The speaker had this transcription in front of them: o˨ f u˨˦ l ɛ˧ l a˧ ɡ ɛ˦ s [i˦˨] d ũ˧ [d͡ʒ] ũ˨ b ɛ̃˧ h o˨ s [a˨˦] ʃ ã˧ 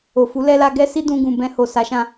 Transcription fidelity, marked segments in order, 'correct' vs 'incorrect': incorrect, incorrect, correct

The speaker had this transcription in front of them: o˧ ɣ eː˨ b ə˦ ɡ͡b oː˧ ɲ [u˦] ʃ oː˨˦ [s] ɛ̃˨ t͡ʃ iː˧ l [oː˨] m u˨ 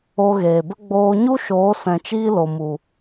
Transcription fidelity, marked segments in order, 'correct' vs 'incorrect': correct, correct, incorrect

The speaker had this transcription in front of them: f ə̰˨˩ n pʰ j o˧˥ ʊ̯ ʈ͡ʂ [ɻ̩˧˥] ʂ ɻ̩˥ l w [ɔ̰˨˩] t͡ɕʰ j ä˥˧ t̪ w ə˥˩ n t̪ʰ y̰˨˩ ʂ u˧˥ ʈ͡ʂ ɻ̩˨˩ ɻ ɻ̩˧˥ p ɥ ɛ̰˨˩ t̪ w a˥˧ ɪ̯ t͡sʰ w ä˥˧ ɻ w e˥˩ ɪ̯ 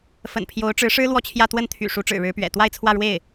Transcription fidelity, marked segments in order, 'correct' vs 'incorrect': correct, incorrect

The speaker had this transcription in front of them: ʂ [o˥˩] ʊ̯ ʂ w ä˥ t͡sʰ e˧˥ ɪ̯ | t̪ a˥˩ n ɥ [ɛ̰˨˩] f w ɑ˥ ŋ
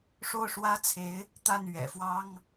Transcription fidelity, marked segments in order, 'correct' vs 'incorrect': correct, correct

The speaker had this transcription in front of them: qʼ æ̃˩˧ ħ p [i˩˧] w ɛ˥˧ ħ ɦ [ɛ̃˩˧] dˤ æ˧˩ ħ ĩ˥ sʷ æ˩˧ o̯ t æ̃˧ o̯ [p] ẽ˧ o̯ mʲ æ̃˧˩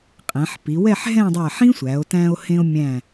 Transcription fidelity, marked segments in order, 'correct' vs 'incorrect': correct, incorrect, incorrect

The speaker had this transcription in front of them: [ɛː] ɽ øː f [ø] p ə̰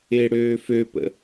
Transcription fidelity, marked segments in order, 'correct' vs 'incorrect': incorrect, correct

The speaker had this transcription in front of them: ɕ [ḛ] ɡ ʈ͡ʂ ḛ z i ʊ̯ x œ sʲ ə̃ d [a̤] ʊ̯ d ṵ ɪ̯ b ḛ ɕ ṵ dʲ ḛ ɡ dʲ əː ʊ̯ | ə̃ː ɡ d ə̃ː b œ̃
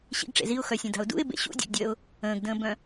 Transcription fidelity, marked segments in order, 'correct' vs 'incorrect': incorrect, correct

